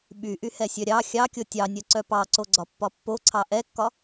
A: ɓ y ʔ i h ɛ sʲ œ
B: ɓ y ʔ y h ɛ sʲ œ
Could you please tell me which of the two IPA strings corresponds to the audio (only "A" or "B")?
B